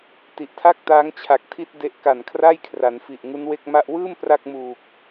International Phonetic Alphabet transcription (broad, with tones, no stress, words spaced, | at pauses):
ti˨˩ʔtʰa˥˩k̚taː˦˥ŋ t͡ɕʰa˨˩k̚tʰi˦˥t̚ de˦˥ʔka˨˩nkʰra˥˩jkʰra˩˦n fi˨˩ʔŋu˦˥nwe˥˩k̚ ma˥˩ʔ wɯː˥˩m pra˥˩k̚muː˨˩k̚